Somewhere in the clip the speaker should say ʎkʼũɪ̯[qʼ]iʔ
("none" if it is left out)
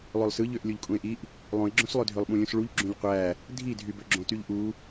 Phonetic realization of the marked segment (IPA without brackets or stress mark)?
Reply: ʔ